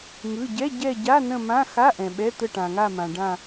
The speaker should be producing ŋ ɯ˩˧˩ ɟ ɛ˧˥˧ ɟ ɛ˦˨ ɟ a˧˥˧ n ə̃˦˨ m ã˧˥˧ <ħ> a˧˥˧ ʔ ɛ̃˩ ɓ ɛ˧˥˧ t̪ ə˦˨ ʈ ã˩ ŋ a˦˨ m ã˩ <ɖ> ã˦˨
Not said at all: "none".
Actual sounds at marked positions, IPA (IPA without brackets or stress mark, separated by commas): x, ɖ